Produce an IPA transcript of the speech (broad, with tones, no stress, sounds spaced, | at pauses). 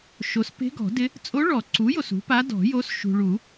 ʃ o˩˥ s p e̤˧˥ ɡ ɔ̤˨˩˦ d ɪ˧˥ | t͡sʼ o˧˥ ɭ ɔ˨˩˦ ǀ u˩˥ j o˨ s ṳ˩˥ p a˧˥ d ɔ̤˨˩˦ j o˧˥ s ʃ ṳ˨ ɭ u˨˩˦